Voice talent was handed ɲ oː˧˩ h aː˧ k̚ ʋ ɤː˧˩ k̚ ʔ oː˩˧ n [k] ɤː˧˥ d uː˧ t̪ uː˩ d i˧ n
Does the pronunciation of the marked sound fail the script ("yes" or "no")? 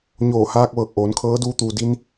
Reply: yes